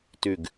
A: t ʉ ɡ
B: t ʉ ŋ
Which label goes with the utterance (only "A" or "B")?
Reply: A